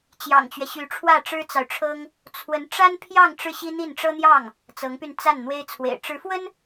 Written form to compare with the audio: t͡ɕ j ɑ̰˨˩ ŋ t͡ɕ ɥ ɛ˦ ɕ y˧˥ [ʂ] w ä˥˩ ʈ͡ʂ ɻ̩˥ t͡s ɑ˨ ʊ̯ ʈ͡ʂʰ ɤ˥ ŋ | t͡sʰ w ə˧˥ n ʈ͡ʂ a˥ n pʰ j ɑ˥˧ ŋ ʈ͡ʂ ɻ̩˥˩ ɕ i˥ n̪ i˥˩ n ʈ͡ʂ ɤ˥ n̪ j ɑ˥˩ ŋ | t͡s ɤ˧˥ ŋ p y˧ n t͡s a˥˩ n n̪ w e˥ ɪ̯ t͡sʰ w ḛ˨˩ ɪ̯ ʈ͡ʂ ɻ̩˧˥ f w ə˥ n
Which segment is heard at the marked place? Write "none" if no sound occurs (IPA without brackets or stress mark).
ʈ͡ʂʰ